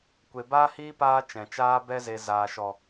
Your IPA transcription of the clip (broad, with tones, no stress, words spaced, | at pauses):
kʷe˧ baː˦hiː˦paː˧ t͡ʃɛ̃˨t͡ʃaː˦ bɛ˧ze˨ zaː˨ʃɔ˨